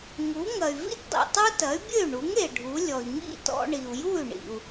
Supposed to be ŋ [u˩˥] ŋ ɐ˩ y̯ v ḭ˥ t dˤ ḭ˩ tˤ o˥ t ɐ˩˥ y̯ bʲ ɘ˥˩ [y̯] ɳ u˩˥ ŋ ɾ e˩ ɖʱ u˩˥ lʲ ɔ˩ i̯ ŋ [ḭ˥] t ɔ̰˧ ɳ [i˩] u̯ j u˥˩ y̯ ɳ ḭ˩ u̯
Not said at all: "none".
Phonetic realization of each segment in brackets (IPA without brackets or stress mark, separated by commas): u˩˥, y̯, ḭ˥˩, i˩